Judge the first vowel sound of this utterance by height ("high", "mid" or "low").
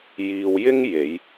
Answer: high